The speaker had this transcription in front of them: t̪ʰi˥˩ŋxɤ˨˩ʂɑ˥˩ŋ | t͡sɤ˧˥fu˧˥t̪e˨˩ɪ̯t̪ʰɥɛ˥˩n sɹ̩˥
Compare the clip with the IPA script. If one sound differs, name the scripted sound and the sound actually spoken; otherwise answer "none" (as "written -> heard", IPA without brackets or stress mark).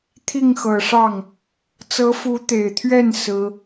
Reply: none